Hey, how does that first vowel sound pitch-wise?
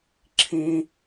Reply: high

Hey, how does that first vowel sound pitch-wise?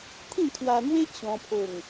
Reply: falling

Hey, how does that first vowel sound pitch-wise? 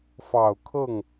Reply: low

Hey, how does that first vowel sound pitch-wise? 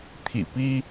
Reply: low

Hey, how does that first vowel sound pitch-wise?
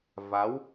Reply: rising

